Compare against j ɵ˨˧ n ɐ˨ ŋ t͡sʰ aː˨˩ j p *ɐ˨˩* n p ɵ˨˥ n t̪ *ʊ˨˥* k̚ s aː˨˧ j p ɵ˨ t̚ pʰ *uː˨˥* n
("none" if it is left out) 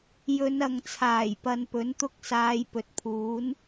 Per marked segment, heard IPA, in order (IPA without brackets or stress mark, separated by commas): ɐ˨˧, ʊ˥, uː˨˥